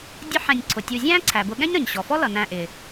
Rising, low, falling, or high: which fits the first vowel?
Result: high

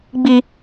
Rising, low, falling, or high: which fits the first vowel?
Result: high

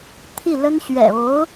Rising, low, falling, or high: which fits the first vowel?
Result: falling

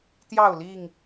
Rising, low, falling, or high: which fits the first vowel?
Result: falling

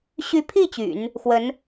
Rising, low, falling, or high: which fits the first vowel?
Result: rising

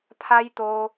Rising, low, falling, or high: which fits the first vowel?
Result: high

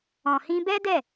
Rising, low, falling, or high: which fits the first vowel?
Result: low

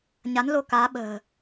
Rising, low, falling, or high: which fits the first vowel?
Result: rising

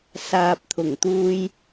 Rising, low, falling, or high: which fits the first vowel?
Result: low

